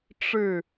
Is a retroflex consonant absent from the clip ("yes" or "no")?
no